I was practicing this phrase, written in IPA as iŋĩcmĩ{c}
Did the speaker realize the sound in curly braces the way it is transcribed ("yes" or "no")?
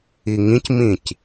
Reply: yes